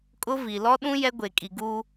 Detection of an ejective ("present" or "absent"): present